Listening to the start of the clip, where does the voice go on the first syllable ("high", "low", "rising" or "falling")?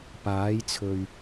rising